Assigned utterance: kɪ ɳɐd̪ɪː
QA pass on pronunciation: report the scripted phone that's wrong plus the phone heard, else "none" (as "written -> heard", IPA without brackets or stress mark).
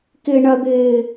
none